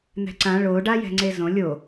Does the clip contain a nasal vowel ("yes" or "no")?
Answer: yes